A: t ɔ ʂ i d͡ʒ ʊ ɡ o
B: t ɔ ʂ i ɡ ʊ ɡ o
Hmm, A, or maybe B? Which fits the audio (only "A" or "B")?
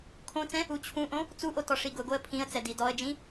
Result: B